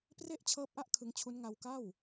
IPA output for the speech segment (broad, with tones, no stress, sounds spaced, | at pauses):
p r e˥˩ ʔ t͡ɕʰ ɤː˦˥ p̚ ʔ a˦˥ ʔ kʰ ɯ˧ ŋ t͡ɕʰ u˦˥ n ŋ a˧ w k a˥˩ w